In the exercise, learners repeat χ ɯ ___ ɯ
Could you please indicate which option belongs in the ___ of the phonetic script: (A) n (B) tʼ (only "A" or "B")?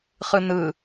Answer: A